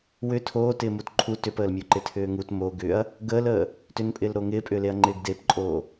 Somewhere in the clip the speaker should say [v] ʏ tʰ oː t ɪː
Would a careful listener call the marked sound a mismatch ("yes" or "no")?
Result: yes